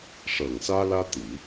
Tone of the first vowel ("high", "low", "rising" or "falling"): low